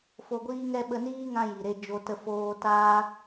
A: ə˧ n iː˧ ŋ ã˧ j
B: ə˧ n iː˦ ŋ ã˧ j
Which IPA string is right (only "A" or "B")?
B